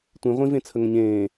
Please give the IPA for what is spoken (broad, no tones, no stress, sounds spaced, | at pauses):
tʷ ĩ ʁʷ ĩ v ẽ t͡sʰ ə ŋ ə̃ ɲ ẽː